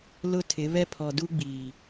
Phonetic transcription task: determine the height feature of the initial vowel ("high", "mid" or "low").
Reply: high